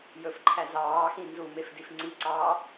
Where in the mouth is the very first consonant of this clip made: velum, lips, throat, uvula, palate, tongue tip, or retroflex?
palate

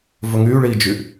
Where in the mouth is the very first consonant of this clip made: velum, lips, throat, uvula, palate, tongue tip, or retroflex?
lips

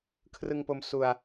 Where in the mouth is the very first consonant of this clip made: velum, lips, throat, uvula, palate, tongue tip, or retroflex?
velum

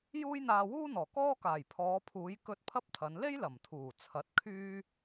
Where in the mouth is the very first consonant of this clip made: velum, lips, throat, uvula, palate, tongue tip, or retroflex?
palate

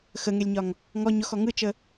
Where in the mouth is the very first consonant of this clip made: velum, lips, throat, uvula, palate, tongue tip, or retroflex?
velum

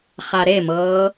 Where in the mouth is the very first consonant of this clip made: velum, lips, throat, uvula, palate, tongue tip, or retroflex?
uvula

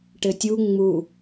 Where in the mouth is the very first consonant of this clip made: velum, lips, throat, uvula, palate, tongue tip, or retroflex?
retroflex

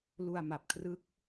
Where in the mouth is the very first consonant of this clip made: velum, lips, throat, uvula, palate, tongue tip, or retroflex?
tongue tip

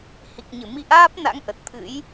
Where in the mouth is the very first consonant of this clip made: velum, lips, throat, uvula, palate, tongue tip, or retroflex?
throat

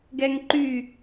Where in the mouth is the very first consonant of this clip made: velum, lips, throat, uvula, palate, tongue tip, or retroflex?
velum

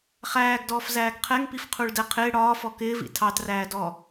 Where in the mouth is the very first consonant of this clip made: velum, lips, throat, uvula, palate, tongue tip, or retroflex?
uvula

